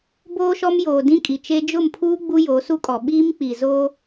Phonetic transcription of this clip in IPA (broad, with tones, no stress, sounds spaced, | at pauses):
b oː˦ ʃ ɔ˦ m j oː˨ d ĩ˦ kʼ i˨ t͡ʃ e˦ d͡ʒ ʊ˦˨ m pʰ uː˦ ɡ͡b u˦ j oː˨˦ s u˦ kʼ ɔ˨ ɓ iː˦ m k͡p i˨ z oː˦